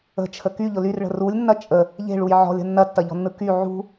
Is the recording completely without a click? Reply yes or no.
yes